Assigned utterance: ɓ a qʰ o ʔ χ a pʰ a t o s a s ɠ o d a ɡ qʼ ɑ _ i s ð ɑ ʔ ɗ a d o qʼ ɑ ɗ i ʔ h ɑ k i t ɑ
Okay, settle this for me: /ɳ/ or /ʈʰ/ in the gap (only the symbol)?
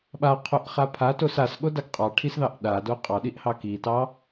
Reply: ʈʰ